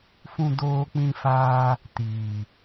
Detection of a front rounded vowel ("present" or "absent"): absent